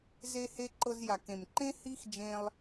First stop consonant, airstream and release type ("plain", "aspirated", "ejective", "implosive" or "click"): click